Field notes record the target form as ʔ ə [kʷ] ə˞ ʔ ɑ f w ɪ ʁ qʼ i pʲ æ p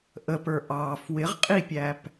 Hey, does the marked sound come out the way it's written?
no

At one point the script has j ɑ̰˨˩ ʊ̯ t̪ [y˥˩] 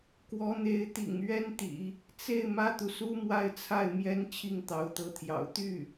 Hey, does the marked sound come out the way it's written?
yes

